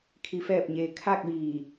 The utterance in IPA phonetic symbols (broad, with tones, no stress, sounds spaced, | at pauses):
kʰ i˩ f ɛː˧˩ p̚ ɲ eː˩ kʰ a˥˨ k̚ ʋ iː˧˩